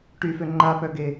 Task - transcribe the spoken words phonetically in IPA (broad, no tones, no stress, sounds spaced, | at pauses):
ʈ y f ø ŋ͡ǃ a p œ ɡ e